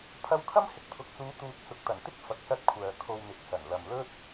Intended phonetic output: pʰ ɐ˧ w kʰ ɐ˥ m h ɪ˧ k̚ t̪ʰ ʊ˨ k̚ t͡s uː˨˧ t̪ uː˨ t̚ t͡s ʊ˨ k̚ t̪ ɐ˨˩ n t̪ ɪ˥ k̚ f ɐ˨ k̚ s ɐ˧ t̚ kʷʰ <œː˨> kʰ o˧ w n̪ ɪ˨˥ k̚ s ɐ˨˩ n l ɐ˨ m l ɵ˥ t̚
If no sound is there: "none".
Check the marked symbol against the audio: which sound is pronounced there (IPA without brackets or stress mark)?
œː˨